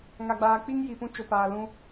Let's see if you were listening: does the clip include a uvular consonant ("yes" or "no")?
no